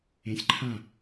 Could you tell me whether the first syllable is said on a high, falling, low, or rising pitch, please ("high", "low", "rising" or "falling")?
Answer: rising